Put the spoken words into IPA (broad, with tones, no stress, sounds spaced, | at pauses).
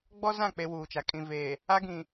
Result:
ɡ͡b ɔ˦ z ã˦˨ k͡p e˦ w uː˨ t͡ʃ a˨ kʼ ĩ˨ v eː˨ | a˦ ɡ ĩ˨